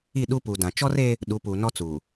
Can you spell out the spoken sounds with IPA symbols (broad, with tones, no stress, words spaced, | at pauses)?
i˦˨ɗu˦pu˨dã˨ t͡ʃɔ˦reː˦ | ɗu˨˦puː˨nɔ˦t͡suː˨